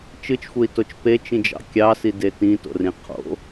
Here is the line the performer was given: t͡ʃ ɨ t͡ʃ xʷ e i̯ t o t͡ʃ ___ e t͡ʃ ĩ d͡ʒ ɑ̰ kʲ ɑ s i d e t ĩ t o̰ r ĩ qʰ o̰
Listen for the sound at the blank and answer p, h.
p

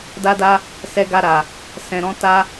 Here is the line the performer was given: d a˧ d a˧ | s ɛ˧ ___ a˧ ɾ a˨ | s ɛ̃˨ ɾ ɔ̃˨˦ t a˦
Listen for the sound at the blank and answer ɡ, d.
ɡ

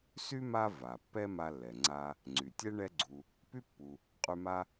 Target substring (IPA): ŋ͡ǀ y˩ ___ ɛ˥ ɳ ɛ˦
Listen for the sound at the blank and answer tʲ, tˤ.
tʲ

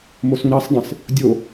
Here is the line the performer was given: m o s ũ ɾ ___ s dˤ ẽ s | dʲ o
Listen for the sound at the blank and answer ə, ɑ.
ɑ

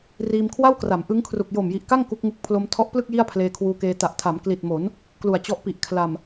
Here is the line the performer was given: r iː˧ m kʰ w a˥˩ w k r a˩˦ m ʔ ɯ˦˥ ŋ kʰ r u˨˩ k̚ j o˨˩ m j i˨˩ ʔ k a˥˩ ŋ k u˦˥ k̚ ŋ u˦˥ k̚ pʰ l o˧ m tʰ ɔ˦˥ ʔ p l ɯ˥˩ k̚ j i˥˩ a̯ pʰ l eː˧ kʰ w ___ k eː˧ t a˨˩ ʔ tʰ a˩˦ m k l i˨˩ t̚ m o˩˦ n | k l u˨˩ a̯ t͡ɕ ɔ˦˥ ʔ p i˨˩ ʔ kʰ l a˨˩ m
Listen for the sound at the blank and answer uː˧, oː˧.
uː˧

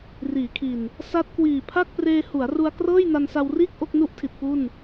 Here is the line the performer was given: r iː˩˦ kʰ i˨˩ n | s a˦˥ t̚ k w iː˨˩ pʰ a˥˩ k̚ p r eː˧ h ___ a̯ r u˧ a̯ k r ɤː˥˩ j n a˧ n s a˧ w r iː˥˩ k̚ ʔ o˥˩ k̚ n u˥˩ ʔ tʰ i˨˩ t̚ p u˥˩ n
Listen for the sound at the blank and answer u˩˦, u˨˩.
u˩˦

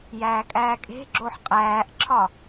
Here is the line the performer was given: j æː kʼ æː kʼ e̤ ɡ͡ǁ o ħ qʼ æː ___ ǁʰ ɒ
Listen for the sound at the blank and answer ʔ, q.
ʔ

